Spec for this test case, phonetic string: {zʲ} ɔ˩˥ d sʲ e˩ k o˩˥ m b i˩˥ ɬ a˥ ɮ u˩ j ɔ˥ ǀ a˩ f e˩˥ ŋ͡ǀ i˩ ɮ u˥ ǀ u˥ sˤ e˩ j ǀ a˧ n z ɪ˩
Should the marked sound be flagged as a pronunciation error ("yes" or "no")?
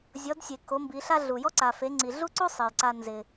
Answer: no